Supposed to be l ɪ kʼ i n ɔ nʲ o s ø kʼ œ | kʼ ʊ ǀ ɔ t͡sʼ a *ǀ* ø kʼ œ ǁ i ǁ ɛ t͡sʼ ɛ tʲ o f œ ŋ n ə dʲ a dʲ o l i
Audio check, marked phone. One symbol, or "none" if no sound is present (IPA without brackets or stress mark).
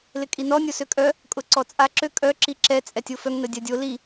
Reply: ǁ